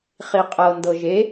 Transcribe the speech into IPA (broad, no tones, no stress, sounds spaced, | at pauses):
χ i qʼ ɤ n d ɤ ʒ e